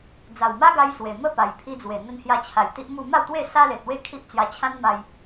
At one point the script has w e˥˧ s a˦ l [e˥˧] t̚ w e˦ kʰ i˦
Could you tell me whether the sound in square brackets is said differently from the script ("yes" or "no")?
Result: yes